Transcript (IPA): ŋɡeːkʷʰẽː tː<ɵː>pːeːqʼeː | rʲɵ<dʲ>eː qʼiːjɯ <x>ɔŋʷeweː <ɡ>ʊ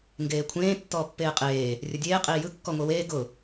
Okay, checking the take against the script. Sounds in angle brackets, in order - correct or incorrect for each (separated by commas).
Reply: incorrect, correct, incorrect, correct